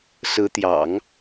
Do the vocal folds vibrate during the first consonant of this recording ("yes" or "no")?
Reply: no